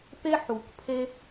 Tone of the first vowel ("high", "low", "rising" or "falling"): high